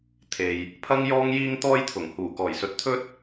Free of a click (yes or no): yes